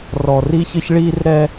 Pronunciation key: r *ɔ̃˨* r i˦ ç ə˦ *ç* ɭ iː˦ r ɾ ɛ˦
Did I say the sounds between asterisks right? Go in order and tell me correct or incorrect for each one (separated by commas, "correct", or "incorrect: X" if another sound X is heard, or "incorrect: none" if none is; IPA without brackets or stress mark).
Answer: incorrect: ɔ˨, correct